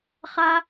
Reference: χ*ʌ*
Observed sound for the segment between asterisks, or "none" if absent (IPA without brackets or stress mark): a